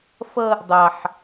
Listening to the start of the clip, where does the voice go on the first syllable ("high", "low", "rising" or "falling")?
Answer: high